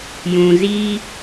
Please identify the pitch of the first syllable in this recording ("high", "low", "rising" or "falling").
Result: low